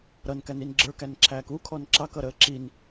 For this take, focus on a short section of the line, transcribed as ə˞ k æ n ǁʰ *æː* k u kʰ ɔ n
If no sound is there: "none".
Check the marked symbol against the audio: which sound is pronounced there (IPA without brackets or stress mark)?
æː